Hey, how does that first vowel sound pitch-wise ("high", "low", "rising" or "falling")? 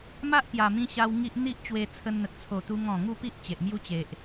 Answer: high